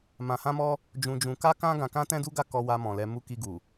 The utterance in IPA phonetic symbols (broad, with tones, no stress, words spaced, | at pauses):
mã˧hã˦mɔ˦ | d͡ʒũ˧d͡ʒũ˧ ka˦kã˦ ɡã˧kã˦tɛ̃˦du˦ ɡa˦kɔ˧wa˧mɔ̃˨ lɛ˧mu˦ ki˧ɡu˨